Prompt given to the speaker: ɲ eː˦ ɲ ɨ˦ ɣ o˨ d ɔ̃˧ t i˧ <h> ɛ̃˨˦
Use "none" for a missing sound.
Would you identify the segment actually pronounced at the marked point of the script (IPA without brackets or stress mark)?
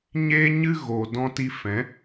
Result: f